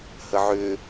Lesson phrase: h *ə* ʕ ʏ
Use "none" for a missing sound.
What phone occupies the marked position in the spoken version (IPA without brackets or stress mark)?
ə